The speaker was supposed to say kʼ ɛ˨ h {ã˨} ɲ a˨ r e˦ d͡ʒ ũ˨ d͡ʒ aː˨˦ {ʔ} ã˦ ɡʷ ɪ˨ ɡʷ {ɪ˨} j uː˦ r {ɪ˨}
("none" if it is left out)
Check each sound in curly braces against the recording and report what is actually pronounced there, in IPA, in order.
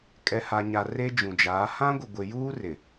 a˨, h, ɪ˨, ɪ˨

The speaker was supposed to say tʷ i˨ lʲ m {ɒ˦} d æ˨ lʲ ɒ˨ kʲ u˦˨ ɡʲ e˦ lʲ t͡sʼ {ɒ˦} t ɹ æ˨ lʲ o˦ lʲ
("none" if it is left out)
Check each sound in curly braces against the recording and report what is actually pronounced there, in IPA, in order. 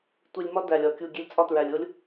ɒ˦, ɒ˦

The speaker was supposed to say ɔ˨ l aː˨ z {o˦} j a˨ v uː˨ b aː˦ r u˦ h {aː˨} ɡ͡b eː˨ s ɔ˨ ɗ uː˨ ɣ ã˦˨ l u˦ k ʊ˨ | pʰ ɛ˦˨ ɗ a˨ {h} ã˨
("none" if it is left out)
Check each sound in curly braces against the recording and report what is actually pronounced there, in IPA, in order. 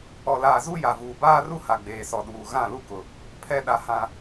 u˦, a˨, h

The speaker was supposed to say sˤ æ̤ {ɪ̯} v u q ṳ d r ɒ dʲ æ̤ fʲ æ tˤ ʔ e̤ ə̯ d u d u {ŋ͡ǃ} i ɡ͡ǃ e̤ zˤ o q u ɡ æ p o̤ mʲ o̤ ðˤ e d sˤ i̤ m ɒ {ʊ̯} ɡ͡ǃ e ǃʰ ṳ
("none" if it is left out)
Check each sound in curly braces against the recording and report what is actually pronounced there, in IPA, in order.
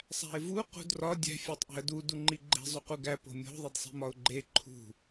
ɪ̯, ŋ͡ǃ, ʊ̯

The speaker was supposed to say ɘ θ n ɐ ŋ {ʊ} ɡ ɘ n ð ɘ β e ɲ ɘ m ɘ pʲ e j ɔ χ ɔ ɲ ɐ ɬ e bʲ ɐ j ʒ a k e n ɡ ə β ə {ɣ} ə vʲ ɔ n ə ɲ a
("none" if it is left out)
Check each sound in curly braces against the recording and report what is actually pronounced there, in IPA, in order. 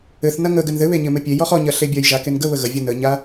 ə, ɣ

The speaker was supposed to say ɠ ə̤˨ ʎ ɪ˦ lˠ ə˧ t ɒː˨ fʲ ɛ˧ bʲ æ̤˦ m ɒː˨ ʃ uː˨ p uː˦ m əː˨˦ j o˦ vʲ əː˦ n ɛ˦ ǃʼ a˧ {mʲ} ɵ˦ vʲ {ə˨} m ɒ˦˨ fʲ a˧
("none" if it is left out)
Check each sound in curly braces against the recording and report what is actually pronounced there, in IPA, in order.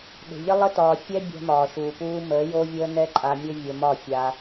mʲ, ə˧

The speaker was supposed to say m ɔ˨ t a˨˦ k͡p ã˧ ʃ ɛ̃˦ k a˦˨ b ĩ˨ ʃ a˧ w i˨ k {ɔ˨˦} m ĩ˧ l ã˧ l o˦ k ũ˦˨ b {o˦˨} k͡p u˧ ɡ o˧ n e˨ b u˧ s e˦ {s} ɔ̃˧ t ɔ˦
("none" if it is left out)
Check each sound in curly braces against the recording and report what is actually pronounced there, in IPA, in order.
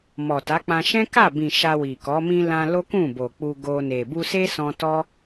ɔ˨˦, o˨, s

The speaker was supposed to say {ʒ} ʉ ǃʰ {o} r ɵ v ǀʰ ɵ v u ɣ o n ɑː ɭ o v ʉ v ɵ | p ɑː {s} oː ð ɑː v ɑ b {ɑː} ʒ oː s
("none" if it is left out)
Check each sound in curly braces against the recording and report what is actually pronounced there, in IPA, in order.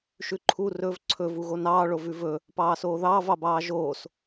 ʃ, u, s, ɑː

